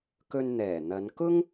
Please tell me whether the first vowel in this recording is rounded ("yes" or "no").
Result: yes